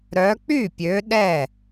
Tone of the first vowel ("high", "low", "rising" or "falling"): rising